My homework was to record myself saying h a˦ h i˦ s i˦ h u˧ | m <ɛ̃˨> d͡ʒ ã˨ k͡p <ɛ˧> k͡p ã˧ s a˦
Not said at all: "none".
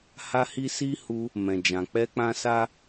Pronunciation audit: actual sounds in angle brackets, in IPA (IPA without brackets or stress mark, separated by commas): ɛ̃˨, ɛ˧